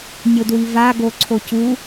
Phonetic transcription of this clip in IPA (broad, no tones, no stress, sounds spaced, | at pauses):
nʲ o d w i v a ɡ o ǀʰ o c u